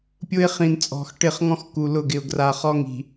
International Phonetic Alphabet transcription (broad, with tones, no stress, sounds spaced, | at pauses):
pʲ ʊ˦ ɪ̯ χ ĩ˨ n t͡sʼ ɔ̤˨ x ʈ ɪ˦˨ χ ŋ ɔ̃˦ x k u˨ l ʊ˦˨ ɡ ɪ˨ ʊ̯ ɡ r a˨ χ ɔ˦ ŋ i̤˨